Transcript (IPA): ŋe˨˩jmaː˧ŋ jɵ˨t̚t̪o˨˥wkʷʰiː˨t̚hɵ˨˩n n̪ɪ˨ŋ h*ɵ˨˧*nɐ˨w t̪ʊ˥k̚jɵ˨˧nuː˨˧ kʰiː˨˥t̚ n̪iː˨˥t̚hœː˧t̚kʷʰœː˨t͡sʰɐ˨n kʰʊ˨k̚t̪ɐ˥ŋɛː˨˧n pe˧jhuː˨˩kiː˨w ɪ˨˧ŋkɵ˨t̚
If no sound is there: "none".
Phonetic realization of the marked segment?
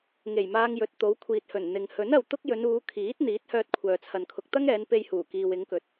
ɵ˨˥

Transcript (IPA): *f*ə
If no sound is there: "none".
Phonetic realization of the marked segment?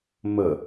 m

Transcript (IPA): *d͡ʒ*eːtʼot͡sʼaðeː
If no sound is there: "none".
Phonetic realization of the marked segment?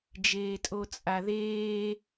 d͡ʒ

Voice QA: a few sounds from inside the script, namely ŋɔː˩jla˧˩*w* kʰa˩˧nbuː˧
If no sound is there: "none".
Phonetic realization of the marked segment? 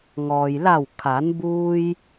w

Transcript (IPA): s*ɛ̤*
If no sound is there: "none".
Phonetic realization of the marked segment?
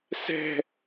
ɛ̤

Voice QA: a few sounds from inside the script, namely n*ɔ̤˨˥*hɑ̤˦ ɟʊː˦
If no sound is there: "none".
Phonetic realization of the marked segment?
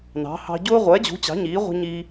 ɑ̤˨˥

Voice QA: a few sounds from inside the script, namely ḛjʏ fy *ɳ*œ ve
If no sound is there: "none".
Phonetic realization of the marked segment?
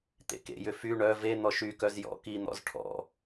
ɳ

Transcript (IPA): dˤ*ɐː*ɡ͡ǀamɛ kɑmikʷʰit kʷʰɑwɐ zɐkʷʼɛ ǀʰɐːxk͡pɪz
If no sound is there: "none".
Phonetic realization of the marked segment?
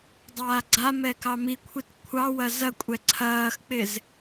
aː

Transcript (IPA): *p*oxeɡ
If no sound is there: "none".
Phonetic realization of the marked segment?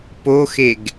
p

